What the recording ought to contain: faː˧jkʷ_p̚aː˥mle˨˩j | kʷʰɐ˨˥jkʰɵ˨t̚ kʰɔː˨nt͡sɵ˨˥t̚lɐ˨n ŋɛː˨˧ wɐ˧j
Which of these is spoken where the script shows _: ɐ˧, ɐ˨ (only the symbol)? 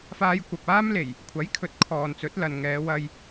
ɐ˨